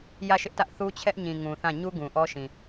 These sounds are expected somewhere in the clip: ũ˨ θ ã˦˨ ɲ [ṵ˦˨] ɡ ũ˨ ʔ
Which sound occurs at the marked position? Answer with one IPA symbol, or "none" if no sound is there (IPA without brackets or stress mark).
u˦